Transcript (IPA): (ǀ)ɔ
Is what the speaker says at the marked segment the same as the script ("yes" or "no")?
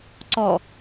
yes